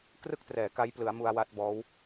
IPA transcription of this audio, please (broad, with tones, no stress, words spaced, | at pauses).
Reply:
krɯ˥˩k̚trɛː˩˦ ka˦˥jplɯ˩˦a̯ mu˧a̯wa˦˥t̚bɔː˦˥w